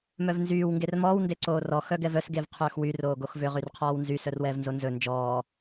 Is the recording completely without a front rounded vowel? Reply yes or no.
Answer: no